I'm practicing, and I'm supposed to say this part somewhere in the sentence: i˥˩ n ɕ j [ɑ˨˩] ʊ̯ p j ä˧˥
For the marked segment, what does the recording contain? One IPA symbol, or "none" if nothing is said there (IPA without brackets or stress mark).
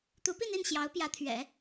ɑ˧˥